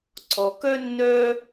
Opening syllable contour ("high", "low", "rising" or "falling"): low